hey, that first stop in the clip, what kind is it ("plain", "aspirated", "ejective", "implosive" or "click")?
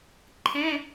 click